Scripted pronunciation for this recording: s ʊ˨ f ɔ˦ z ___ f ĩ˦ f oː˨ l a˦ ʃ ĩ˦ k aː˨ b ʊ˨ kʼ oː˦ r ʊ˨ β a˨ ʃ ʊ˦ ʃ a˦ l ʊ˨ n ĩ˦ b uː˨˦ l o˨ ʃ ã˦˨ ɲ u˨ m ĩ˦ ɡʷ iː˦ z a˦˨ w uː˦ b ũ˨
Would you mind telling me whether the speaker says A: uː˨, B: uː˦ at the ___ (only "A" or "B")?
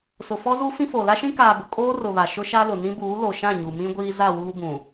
B